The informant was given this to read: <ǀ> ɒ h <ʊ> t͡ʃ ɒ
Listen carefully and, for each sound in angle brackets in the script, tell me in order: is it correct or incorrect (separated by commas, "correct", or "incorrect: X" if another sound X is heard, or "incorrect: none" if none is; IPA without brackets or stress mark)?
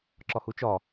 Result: incorrect: ǁ, incorrect: u